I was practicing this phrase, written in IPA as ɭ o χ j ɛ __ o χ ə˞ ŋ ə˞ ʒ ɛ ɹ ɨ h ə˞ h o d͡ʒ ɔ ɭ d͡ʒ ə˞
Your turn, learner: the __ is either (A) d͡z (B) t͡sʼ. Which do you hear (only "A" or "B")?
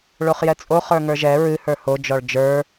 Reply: B